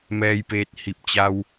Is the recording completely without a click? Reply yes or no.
yes